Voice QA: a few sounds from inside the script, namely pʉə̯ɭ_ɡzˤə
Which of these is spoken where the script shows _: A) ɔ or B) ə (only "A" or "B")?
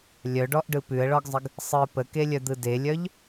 A